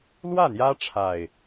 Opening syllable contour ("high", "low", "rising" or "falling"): falling